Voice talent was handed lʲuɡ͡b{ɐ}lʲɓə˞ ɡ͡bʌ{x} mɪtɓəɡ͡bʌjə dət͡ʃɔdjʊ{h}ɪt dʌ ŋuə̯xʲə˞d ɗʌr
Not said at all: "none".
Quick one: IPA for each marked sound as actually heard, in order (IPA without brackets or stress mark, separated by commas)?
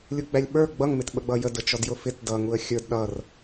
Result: æ, ŋ, f